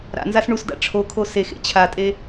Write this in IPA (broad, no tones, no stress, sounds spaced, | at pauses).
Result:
ɾ a̰ n z a s ɳ u s d a̰ ʈ͡ʂʰ o kʰ o s e x ḛ t͡ɕʰ a tʼ e